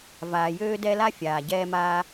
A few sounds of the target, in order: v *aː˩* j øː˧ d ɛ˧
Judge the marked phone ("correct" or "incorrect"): correct